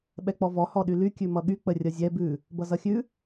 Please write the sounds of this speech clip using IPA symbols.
ɓ ɛ k͡p ɔ v ɔ h ɔ ɗ y l y kʲ ʉ m ʌ ɠ y k͡p ə rʲ ʌ zʲ ɛ b ʉ | b ʌ z ʌ xʲ ʉ

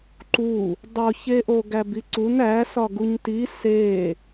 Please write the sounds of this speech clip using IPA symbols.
ǃ u | dˤ o ç e ʔ o ɡ æ b i ǀ u n æ s ɒ ɡ u ɲ t i s e

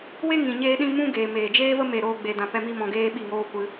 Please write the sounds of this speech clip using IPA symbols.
w e˦ ŋ ĩ˨ ɲ eː˦ ɗ ĩ˦ m ũ˦ ɡ eː˨ m eː˨ d͡ʒ eː˦ v ə˦ m e˦˨ ɾ oː˦ ɡ͡b e˧ d ã˧ p ɛ˧ m i˦ m ɔ̃˧ ɡ eː˦ ɓ i˦˨ ŋ oː˦ kʷ ɨ˧

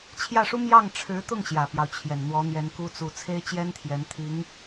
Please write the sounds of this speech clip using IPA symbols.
t͡ɕʰ j ä˥˩ ʂ u˥ m j ɑ˥˩ ŋ ʈ͡ʂʰ ɻ̩˧˥ t̪ ʊ˥˩ ŋ ɕ j ä˨˩ p j ɑ˦ ʊ̯ t͡ɕʰ j ɛ˨˩ n n̪ w ɔ˧˥ n̪ j ɛ˧˥ n k u˥ t͡s u˥˩ t͡sʰ e˥ ɪ̯ t͡ɕ j ɛ˥ n t̪ʰ j ɛ˧˥ n t̪ʰ i˧˥ ŋ

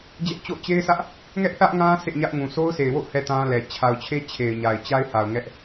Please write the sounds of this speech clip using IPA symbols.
d͡ʑ ɛ˦ ʔ t͡ɕ o̰˦˨ ʊ̯ t͡ɕ e˦ ɪ̯ s ä˦ ʔ | ŋ ɛ˦ ʔ θ ä˦ ʔ ŋ ã˦ s ḛ˦˨ ɲ ä˦ ʔ ŋ ũ˨ s o˦ ʊ̯ s e˨ ɪ̯ w o̰˦˨ ʊ̯ h ɛ˨ t ã˦ l ɛ˨ t͡ɕʰ a˨ ʊ̯ t͡ɕʰ e˦ t͡ɕʰ e˨ ɪ̯ ɲ a˨ ɪ̯ t͡ɕ a˦ ɪ̯ h a˨ ʊ̯ ŋ ɛ˦ ʔ

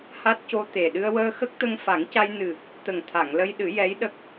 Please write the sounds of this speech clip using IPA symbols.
h a˦˥ t̚ c o˧ t̪ e˨˩ ɗ ɨ˧ ə̯ w əː˧ x ə˦˥ k̚ t̪ ə˧ ŋ f a˨˩˦ ŋ c a˧ j n ɨ˨˩ | t̪ ə˨˩ ŋ t̪ʰ a˨˩˨ ŋ l ə˧ j ɗ ɨ˨˩˦ j ɛ˧˥ j ɗ ə˦˥ k̚

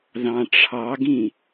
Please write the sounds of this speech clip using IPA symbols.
ð ɑ̃ ʈ͡ʂʰ ɑ ɡ ĩ

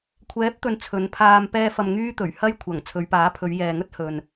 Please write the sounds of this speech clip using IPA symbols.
kʷʰ ɛː˨˥ p̚ t̪ ɵ˨ n t͡sʰ ɵ˨˧ n pʰ aː˧ m p ɛː˧ f ɐ˨ m ŋ yː˥ t̪ ɵ˨˩ ɥ h ɐ˥ j kʷʰ ɐ˨˩ ŋ t͡sʰ ɵ˨˧ ɥ p aː˨˥ pʰ ɵ˨˧ ɥ j ɛː˨ ŋ ɵ˥ t̚ h ɵ˨ n

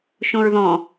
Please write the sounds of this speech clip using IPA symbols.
ʃ õ ɹ ð ɔ̃

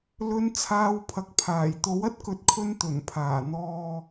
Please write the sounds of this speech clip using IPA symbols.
l ɵ˧ n t͡sʰ aː˧ w pʰ ɐ˨ k̚ pʰ aː˨˩ j t̪ o˨˥ w ɐ˥ t̚ k ɵ˨ t̚ kʰ ɵ˧ n t̪ ɵ˨˩ n pʰ aː˨˩ n̪ ɔː˨

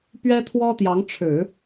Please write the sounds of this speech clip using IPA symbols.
p ɥ ɛ˥ t̪ʰ w ɔ˥ t̪ j ɑ˧˥ ŋ ʈ͡ʂʰ ɻ̩˨˩˦

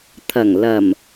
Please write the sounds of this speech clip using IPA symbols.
t̪ʰ ɐ˨˩ ŋ l ɐ˨˩ m

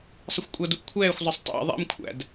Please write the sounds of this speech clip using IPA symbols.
sˤ ə xʷ kʷʼ ʌ d u ʔ kʷʰ ɛː xʷ zˤ ʌ sˤ tˤ æ̰ ðˤ ɛ̰ m kʷʰ æ̰ d

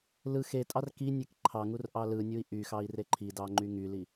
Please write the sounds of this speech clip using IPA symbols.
l ɯ x e tʼ ɑ r k i nʲ e k ǃʰ ɑ ŋ u r ʔ ɑ l ɯ nʲ u i̯ ʔ y x ɑ i̯ r e ǃʰ i d ɑ ŋ͡ǃ y ŋ y l i

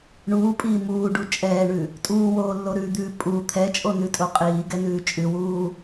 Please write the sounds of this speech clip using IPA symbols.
ɳ uː pʼ iː m uː ɖ u t͡ʃʼ ɛː ɳ ʉ | tʼ uː w oː lː o ɾ ʉ d̪ ʉː pʼ u t̪ʰ ɛ t͡ʃʼ o n ʉ tʼ o qʼ iː ɡ ɛ n ʉː t͡ʃʼ ʉ w uː

